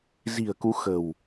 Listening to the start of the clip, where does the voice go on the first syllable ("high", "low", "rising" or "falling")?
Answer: low